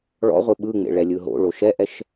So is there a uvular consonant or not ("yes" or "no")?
yes